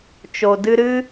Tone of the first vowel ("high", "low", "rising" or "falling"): low